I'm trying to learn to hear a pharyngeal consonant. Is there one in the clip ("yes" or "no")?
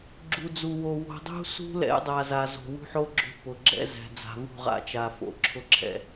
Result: yes